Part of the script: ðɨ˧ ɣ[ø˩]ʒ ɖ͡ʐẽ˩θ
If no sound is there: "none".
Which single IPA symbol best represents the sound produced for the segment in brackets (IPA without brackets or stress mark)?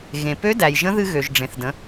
ø˩